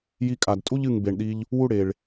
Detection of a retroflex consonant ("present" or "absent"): present